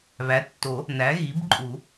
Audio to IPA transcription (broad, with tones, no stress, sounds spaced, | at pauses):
β æ˩˥ tː o˨˩˦ | n æ˩˥ ɣ i˩˥ b ǃʼ u˨˩˦